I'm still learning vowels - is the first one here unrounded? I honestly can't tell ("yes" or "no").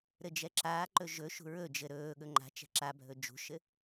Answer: yes